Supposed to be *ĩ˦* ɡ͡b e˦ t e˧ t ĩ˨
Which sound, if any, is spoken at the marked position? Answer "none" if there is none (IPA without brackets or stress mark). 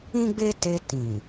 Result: ĩ˦